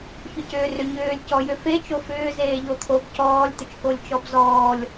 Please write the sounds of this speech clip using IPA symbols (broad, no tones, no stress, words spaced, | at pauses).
çʏcʏːrʏɲʏːlʲ cɔjʏfe t͡ʃofʏː zeːʎot̪ʰob cɔːlʲ t̪ʏt͡ʃkolʲt͡ʃɔbzɔːlʲ